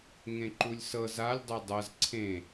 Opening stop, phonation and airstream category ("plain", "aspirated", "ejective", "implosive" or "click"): click